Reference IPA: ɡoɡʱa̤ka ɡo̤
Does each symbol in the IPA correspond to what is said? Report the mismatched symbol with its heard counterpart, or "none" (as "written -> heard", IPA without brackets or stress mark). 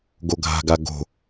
k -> ɡ